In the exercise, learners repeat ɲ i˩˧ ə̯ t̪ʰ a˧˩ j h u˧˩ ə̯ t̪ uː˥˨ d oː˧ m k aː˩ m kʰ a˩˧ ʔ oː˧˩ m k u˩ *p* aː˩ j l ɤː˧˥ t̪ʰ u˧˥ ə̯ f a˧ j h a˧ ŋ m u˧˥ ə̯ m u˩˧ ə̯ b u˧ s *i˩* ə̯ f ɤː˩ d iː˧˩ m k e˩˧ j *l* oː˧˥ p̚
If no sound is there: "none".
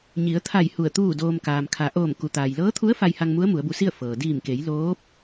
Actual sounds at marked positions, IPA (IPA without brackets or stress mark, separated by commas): t̪, i˥˨, l